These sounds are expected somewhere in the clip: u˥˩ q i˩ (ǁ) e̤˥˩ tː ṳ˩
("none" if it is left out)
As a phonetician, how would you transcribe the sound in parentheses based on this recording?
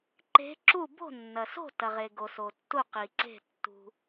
ǀ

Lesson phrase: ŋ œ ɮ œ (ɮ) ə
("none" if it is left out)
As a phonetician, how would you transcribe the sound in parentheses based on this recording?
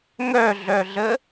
ɮ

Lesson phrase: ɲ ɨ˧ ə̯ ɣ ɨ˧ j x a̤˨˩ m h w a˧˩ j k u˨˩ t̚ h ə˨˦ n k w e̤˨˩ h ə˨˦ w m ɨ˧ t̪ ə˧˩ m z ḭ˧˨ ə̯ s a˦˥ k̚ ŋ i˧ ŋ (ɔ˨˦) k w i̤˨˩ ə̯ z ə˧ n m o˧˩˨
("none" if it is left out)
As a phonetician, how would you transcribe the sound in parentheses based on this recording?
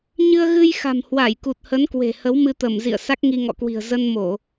ɔ̰˧˨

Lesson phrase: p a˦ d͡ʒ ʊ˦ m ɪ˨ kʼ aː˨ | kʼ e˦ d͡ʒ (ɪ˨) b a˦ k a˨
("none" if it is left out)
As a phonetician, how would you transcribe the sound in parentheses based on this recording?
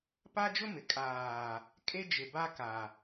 ɪ˨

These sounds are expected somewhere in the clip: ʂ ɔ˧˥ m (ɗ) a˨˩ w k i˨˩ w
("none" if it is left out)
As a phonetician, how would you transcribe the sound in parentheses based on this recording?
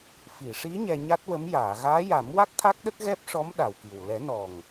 ɗ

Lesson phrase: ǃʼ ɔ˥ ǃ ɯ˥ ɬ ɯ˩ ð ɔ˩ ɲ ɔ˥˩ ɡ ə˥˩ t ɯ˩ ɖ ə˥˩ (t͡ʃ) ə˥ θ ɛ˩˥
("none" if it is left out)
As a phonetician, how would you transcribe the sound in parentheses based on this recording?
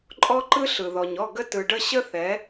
ɕ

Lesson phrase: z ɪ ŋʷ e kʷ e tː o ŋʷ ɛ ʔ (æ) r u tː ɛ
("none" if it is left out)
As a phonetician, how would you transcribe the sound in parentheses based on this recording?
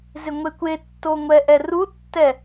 ɛ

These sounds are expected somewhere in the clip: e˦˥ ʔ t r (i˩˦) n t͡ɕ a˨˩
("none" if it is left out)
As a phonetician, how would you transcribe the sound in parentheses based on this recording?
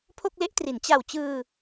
i˩˦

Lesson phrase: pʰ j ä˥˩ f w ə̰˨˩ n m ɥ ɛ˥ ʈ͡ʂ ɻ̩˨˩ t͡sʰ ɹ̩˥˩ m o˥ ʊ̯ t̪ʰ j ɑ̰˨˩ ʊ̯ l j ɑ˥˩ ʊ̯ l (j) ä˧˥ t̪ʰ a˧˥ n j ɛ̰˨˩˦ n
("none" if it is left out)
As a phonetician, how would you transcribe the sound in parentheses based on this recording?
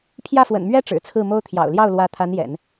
w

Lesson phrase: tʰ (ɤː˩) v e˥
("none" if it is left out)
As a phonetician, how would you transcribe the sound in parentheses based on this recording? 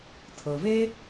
ɤ˩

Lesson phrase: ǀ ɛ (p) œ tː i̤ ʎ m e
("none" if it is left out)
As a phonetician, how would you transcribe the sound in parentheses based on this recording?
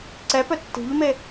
p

